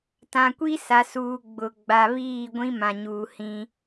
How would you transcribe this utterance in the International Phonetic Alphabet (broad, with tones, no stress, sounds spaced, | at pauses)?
t ã˨ kʷ i˦ s a˨ s uː˨ ɡ͡b ʊ˨ ɡ͡b a˨ β iː˦˨ ɡʷ ĩ˦ m ã˨ ɲ uː˨ h ĩ˦